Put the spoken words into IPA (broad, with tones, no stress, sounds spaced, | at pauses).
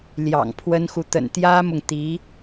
l j ɑ̰˨˩ ŋ pʰ w ə˥ n x u˨ t̪ ə̰˨˩ n t̪ j ä˥ m ʊ˨ ŋ t̪ i˧˥